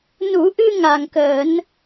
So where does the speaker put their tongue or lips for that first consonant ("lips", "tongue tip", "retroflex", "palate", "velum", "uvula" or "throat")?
tongue tip